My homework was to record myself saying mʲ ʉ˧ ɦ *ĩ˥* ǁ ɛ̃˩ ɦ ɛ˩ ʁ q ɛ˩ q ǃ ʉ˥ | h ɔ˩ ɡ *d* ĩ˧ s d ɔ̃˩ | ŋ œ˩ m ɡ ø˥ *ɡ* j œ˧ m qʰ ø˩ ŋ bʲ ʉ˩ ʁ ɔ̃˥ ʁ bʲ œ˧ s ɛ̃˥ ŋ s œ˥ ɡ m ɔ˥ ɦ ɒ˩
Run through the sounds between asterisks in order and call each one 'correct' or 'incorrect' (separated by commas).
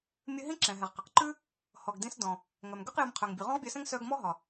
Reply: correct, correct, incorrect